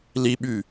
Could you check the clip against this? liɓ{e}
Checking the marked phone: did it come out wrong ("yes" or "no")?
yes